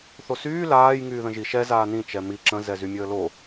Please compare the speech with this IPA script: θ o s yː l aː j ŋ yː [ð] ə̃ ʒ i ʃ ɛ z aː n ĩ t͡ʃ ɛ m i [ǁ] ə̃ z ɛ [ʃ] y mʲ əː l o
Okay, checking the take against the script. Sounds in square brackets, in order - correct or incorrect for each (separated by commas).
correct, correct, incorrect